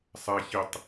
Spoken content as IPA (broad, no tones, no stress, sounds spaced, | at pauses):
sˤ ɛ ç i tˤ